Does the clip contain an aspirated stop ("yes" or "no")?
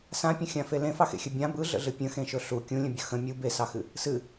no